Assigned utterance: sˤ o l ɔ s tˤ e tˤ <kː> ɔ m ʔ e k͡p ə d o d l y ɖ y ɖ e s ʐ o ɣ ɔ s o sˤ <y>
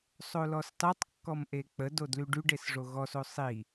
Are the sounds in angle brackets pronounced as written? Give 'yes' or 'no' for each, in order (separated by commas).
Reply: yes, no